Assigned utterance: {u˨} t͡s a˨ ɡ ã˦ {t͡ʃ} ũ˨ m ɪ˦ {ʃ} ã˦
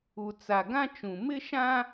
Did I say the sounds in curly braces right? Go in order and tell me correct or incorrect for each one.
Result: correct, correct, correct

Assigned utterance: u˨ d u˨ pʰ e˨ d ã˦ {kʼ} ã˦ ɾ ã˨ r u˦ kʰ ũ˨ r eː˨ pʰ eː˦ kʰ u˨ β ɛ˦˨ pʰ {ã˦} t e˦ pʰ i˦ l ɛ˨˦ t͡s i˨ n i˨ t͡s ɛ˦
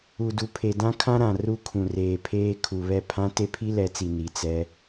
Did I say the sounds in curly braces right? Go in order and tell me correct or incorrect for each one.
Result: incorrect, correct

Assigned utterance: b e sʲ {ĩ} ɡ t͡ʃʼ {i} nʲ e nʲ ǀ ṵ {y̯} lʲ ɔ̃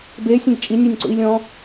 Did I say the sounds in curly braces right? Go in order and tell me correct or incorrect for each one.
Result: incorrect, correct, incorrect

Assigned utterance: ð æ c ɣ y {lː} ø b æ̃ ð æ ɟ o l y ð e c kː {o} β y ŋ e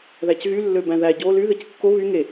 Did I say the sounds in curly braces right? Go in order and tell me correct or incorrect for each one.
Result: correct, correct

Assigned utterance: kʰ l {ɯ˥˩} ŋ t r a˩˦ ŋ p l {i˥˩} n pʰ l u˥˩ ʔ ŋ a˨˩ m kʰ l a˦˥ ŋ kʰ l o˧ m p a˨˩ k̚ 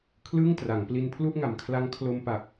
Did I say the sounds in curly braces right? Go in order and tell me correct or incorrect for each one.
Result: correct, incorrect

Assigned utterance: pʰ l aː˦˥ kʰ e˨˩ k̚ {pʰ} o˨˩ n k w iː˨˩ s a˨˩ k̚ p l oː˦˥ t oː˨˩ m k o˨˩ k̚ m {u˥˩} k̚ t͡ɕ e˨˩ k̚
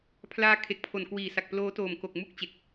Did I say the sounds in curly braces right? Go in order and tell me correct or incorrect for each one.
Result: correct, correct

